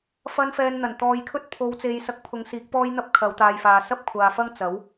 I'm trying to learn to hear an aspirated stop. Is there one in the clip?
yes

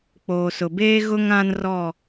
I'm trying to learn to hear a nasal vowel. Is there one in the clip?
yes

